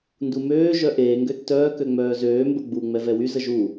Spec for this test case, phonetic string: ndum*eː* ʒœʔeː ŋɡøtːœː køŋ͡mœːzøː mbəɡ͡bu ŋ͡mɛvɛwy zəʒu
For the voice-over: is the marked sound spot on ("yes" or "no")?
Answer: no